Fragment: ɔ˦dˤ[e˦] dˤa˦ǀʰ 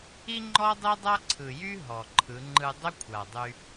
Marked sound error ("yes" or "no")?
no